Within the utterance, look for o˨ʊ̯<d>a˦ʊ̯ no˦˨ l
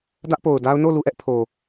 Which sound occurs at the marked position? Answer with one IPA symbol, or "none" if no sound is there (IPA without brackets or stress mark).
d